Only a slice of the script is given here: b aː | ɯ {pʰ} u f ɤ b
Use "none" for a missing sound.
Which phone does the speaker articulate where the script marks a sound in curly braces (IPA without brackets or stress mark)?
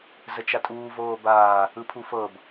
pʰ